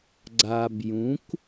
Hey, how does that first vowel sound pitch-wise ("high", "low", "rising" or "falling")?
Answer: low